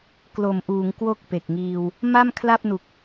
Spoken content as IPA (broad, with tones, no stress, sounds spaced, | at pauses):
k l o˨˩ m ʔ uː˩˦ ŋ k w o˥˩ k̚ p e˨˩ k̚ ŋ iː˧ w | m a˥˩ m kʰ l a˥˩ p̚ n u˨˩ k̚